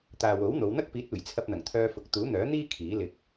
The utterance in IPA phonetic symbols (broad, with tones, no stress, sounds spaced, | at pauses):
t̪ aː˨ w o˨˥ w n̪ o˨˧ w n̪ ɐ˥ k̚ p iː˨˥ t̚ uː˨˩ j t͡sʰ ɐ˧ p̚ n̪ ɐ˨˩ ŋ t̪ʰ œː˧ f ʊ˨˥ k̚ t̪ uː˨˥ n̪ œː˨˥ n̪ iː˥ kʰ iː˨˥ l ɪ˧ k̚